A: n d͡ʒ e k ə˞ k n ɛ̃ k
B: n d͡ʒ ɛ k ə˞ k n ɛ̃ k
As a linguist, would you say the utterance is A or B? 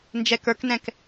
B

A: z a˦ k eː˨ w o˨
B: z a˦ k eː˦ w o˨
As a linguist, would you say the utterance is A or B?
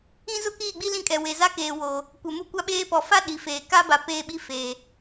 A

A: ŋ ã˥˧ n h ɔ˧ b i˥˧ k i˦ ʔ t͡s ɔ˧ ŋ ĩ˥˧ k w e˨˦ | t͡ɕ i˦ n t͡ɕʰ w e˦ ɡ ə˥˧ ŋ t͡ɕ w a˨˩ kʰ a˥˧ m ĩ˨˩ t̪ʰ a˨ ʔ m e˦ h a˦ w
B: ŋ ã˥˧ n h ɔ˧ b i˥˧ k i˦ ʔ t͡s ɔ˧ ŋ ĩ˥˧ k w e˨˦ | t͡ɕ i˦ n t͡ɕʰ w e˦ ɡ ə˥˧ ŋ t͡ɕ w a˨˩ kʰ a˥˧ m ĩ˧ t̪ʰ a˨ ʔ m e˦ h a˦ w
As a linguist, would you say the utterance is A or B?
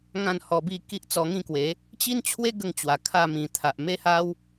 A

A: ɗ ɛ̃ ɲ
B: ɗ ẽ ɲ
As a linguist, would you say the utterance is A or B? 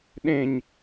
B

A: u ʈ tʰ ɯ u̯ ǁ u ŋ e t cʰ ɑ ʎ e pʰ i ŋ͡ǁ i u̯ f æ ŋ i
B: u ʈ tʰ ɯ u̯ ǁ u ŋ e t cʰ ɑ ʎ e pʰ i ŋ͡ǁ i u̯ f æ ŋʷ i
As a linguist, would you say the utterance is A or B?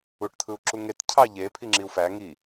A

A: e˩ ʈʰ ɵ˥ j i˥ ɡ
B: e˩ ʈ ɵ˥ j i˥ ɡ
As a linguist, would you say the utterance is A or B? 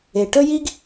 B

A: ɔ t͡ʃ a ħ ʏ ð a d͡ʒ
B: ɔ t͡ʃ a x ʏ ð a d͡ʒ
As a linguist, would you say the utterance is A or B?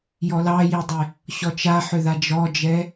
A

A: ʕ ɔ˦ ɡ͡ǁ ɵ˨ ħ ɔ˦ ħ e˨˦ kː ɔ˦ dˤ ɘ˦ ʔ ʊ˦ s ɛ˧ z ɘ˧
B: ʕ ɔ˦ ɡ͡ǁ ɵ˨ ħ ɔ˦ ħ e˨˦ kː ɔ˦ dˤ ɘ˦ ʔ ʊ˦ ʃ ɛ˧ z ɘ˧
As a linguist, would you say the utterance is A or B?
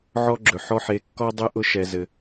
B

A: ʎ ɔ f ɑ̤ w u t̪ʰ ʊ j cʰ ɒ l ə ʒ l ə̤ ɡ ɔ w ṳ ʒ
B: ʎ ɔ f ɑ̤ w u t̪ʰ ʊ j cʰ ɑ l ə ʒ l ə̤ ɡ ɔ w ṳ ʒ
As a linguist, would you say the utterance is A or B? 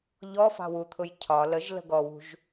A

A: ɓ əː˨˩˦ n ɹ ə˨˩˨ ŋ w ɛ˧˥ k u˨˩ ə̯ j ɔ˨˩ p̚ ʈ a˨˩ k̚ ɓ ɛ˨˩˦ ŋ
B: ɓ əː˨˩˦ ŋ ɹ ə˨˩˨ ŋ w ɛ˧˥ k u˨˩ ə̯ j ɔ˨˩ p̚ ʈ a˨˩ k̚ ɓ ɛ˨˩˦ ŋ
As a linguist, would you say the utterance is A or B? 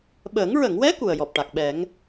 B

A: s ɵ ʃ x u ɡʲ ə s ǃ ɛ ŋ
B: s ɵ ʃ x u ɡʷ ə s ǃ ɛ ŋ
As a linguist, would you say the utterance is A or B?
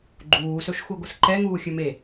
B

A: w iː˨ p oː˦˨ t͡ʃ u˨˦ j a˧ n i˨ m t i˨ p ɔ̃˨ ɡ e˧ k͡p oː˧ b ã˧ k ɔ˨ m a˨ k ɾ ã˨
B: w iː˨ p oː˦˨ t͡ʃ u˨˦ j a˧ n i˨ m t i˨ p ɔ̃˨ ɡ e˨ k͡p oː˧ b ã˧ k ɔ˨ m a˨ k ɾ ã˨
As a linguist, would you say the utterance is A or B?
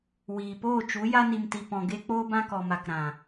A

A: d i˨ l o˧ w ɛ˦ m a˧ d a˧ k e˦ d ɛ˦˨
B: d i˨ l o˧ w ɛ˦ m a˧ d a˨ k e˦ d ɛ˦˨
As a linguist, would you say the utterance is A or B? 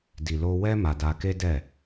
A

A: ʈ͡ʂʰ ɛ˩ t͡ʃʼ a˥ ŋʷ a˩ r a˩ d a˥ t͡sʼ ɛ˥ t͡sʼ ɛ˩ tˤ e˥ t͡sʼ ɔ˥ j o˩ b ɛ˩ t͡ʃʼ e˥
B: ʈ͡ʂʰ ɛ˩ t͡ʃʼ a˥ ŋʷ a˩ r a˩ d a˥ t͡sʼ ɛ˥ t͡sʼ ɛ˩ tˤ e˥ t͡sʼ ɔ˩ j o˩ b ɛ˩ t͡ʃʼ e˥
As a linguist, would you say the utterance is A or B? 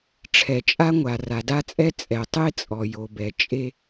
B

